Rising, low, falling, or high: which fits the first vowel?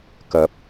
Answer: rising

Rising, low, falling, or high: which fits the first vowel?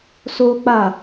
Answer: high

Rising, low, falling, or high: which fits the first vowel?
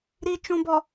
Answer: low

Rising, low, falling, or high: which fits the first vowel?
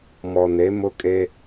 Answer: low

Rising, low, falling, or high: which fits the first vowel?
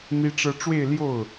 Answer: high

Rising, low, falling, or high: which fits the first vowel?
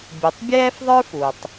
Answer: low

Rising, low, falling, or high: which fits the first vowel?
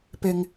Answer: high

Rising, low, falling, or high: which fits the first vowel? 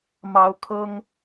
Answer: rising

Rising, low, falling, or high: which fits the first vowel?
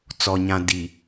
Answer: low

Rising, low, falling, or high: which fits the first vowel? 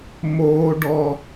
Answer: high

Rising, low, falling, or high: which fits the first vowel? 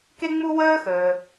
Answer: high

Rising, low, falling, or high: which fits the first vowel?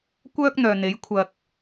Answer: high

